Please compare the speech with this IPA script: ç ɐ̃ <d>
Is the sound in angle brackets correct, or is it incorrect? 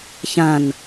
incorrect